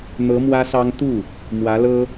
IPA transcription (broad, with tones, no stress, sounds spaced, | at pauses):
n̪ ɤ˧˥ m w ä˥ s ɑ˥ ŋ t̪ u˥˩ | m w ä˧˥ l ɤ˥